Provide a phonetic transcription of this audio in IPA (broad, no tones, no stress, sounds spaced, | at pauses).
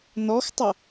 n ɔ x tˤ ʌ